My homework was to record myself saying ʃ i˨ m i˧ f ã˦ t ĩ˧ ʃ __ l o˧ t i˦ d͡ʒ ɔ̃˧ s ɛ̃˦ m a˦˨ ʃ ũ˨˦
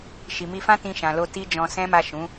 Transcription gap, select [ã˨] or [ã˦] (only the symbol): ã˨